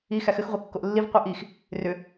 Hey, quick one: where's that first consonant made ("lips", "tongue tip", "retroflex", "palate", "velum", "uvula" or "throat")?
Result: velum